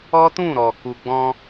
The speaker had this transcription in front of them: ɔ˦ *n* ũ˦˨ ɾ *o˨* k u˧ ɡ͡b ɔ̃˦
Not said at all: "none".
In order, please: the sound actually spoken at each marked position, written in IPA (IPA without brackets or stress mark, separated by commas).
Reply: t, ɔ˨